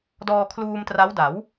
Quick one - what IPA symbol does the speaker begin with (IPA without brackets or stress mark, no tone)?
d